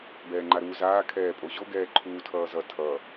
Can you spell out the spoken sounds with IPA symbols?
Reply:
b ɛː ŋ͡ǃ a ɾ uː z aː kʰ ɛː pʼ o ʑ o ɡ ɛː ǃʰ uː tʰ ʌː z ʌ tʰ ʌ

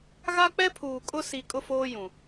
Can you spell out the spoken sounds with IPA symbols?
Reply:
ɣ a˦ k͡p ɛ˦ pʰ uː˨ kʼ ʊ˦ s i˨ kʼ ʊ˦ f oː˦ j ũ˨

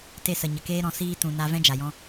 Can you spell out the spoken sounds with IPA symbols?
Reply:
t e˧ s ə˨ ɲ ə˨ k eː˦ ɾ ɔ̃˧ s iː˧ t ũ˨ n a˧ v ɛ̃˦ d͡ʒ a˨ j ɔ̃˧

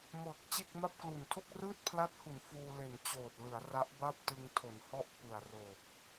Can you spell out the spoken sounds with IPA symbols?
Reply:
m ɤː˨˩ k̚ t͡ɕ e˥˩ k̚ m a˥˩ p̚ k l u˨˩ n tʰ o˥˩ k̚ r ɯː˥˩ t̚ pʰ l a˦˥ t̚ h u˩˦ n f uː˧ l e˨˩ n t͡ɕ oː˨˩ t̚ l ɯ˩˦ a̯ r a˦˥ ʔ b a˥˩ p̚ t ɯ˧ ŋ tʰ o˩˦ n h ɔ˥˩ ʔ p ɯ˨˩ a̯ r o˨˩ k̚

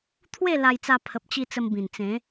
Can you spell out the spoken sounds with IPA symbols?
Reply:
t̪ʰ w e˥˧ l a˧ j t͡s a˧ pʰ ə˨ p̚ t͡ɕ i˧ t͡s ə˧ m b ĩ˨˩ n t͡s ẽ˨˦

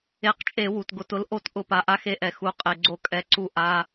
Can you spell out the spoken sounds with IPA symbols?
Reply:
e˧˩ q t͡ʃʼ e˧˩˧ w u˩ t ɡ ʊ˧˩˧ t ʊ˧˥ l ʔ o˥˨ t ʔ ʊ˧˩˧ p a˩ ʔ a˧˥ x e˧˥ ʔ ɛ˩ x u˩˧˩ qʼ e˩ ɡ͡ǀ o˧˩ kʼ ɛ˩˧˩ ǀ u˧˩ ʔ a˩˧˩

